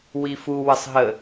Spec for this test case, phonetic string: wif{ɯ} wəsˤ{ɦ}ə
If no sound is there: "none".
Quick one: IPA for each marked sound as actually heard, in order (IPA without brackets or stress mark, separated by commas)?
u, ɦ